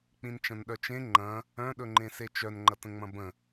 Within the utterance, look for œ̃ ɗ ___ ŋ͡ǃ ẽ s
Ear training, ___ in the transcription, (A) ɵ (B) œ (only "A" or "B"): A